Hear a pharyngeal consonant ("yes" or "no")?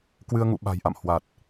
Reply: no